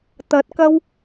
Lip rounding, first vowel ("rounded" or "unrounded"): unrounded